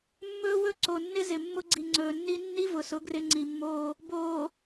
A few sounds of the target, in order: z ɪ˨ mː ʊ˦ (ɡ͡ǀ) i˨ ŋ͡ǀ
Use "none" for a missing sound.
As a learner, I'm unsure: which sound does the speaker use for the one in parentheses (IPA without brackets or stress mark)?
ɡ͡ǀ